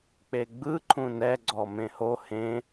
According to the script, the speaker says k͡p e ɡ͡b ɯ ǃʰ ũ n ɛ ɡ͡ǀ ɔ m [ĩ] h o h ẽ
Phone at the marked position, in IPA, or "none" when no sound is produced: ẽ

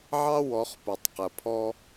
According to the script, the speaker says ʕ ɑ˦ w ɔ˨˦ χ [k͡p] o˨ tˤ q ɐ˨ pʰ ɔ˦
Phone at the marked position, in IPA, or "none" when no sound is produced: p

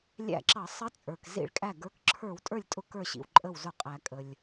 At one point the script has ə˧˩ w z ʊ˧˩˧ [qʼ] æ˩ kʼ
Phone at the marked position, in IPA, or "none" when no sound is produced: qʼ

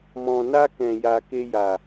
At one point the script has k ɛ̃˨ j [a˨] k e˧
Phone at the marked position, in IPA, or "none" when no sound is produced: a˨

